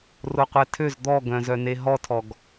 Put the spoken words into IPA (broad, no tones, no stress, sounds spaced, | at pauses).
r o qʷ ɛ tʰ ø z d̪ ɔ ɡ œ̃ z œ n e ɦ ɔ tʰ ɔ ɡ